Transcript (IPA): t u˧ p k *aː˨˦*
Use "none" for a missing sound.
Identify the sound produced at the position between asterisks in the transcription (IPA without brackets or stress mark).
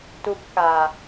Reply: aː˨